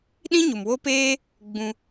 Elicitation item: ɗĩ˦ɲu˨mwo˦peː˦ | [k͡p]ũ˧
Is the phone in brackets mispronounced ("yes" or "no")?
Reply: yes